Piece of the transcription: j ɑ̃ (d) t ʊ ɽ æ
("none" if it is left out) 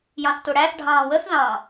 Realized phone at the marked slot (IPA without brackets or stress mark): θ